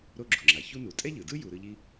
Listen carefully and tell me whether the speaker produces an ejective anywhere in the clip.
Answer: yes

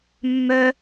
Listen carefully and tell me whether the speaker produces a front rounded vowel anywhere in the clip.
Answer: yes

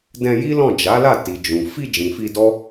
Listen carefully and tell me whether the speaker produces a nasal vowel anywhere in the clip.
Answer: yes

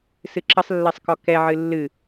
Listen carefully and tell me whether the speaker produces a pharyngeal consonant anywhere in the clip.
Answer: yes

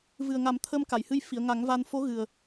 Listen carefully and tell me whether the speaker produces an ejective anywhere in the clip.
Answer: no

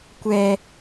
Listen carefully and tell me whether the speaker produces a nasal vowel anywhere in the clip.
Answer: no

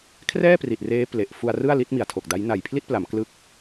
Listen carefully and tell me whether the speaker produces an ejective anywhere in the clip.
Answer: no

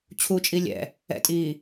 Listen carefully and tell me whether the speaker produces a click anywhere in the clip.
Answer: no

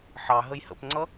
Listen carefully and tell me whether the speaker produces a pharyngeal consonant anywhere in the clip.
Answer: yes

